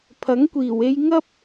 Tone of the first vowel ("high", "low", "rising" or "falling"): rising